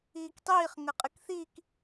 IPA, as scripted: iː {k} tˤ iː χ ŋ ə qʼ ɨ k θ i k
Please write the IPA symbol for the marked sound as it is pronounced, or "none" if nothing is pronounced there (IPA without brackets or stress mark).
k